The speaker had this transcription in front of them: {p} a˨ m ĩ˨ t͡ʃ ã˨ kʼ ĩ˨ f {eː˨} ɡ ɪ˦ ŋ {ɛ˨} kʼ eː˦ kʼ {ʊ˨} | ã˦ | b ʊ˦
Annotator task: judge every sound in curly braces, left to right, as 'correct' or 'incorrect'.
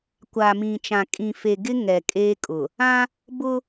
incorrect, incorrect, correct, correct

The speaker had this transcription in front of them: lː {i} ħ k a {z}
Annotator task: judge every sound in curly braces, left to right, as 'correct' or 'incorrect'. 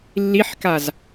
correct, correct

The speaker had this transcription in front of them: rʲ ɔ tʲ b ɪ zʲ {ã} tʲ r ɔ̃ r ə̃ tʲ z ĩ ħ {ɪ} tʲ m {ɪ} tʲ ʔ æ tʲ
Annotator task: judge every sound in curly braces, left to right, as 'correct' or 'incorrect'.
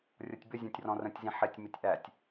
correct, correct, correct

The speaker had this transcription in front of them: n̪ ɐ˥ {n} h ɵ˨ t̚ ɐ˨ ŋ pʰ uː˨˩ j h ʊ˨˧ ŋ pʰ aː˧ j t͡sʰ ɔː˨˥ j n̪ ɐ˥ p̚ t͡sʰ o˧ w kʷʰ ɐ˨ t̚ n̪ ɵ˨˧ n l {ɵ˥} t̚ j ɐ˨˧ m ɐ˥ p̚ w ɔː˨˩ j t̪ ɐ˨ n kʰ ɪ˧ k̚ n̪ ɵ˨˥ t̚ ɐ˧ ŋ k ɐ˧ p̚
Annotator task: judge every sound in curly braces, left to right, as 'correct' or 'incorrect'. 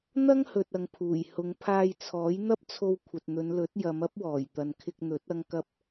incorrect, incorrect

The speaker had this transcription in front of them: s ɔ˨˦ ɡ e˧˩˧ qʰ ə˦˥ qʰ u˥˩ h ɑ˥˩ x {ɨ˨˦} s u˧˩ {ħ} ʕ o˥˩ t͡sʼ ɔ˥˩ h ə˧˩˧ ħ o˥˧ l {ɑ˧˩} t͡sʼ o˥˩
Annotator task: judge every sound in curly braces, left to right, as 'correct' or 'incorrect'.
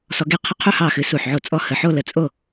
correct, correct, incorrect

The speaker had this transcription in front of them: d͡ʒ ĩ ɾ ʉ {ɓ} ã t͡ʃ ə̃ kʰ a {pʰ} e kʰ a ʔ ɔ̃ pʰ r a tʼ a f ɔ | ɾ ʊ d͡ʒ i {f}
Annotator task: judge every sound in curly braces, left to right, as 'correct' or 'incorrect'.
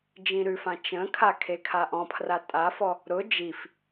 incorrect, incorrect, correct

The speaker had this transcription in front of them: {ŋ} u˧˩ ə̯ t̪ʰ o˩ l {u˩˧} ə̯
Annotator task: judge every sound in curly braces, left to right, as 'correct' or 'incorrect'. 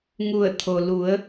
correct, correct

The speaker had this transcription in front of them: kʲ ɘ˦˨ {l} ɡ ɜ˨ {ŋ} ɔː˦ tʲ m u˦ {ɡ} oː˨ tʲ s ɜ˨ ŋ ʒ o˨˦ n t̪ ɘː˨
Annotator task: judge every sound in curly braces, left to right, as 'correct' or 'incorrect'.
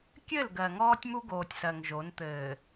correct, correct, correct

